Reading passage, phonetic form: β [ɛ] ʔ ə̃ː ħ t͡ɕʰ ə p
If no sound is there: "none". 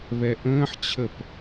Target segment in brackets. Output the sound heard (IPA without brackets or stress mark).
ɛ